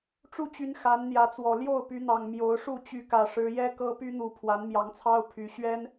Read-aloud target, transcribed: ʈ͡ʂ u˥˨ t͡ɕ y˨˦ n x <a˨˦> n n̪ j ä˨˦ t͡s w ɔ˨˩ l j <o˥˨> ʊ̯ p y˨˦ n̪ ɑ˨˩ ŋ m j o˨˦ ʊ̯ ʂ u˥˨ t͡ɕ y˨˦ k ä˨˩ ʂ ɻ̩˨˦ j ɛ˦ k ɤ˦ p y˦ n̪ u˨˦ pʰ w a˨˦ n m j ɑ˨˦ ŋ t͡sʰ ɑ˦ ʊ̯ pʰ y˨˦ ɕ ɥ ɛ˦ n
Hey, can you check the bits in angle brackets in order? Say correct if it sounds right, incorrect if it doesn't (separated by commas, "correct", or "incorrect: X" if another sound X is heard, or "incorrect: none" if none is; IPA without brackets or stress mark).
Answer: correct, correct